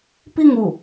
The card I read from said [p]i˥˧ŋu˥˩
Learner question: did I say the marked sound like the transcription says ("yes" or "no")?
yes